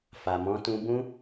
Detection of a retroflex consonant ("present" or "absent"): absent